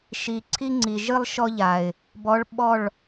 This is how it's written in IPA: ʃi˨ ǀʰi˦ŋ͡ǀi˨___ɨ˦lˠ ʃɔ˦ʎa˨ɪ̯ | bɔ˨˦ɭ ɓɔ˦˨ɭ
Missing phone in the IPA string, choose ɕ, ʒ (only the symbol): ʒ